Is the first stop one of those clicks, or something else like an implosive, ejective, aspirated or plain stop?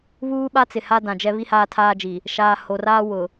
implosive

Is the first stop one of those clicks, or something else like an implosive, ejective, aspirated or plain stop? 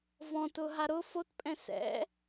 plain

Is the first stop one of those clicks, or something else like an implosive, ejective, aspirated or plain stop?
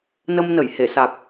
plain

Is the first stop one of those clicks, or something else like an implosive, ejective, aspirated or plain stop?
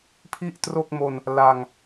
aspirated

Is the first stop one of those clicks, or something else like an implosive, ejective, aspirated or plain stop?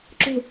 click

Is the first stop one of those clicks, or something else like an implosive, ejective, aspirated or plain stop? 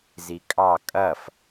ejective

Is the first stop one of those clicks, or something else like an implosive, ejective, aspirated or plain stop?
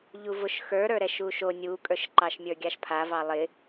ejective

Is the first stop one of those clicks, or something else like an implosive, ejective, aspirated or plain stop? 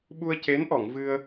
implosive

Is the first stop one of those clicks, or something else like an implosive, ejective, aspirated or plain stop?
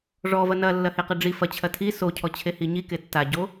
plain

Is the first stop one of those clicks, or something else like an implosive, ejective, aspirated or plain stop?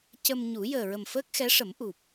plain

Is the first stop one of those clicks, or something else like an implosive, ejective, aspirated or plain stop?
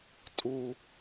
ejective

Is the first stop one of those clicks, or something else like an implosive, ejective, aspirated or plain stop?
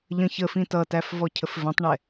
plain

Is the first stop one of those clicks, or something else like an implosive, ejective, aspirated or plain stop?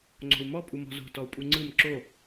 click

